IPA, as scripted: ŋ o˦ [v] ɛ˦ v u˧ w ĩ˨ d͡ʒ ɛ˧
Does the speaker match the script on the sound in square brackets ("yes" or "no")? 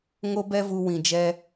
no